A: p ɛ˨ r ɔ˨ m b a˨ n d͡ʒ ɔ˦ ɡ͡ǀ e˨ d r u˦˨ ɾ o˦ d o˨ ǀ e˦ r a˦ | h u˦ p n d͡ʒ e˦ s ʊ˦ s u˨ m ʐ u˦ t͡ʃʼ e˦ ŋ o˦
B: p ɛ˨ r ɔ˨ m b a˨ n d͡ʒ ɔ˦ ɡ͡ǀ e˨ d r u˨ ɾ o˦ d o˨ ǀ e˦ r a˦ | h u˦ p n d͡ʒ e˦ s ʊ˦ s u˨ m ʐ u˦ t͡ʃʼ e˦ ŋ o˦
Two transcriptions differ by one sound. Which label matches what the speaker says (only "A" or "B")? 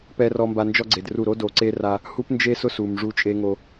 A